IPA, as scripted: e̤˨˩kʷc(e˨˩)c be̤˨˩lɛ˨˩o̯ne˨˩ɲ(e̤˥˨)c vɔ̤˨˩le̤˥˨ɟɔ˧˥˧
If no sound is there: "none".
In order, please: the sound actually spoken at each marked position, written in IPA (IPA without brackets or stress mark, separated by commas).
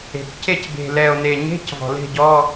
e˥˨, e̤˧˥˧